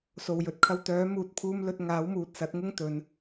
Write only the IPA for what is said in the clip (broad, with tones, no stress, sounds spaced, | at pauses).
s o˨˩ w j ɵ˨ t̚ kʰ ɐ˧ w t̪ œː˨˥ m uː˨ t̚ pʰ uː˧ m l ɵ˧ t̚ ŋ aː˨˥ w m uː˨ t̚ s ɐ˨˥ t̚ ŋ ʊ˥ ŋ t̪ ɵ˨˧ n